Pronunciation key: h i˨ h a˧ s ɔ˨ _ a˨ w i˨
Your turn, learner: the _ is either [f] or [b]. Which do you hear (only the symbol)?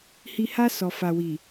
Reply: f